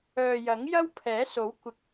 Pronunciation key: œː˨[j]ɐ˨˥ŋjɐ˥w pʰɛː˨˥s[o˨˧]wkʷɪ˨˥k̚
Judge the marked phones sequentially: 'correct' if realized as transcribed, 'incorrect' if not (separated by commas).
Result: correct, incorrect